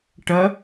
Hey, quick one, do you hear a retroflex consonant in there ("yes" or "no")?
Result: yes